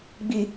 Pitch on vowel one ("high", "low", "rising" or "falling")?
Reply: low